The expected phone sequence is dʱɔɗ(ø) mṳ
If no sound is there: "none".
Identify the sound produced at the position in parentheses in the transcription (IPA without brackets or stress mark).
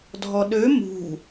ø